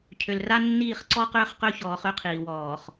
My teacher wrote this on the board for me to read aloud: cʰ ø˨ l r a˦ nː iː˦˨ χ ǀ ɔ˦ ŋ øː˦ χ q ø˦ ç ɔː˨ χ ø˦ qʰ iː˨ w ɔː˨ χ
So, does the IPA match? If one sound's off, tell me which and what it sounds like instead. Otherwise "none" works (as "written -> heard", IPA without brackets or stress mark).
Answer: ŋ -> q